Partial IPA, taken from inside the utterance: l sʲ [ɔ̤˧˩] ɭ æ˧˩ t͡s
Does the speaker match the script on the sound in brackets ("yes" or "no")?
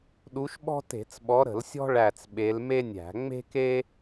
no